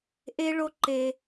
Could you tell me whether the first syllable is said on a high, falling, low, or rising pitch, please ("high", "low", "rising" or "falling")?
high